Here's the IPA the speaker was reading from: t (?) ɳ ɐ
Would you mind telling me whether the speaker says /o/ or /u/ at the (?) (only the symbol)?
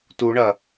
u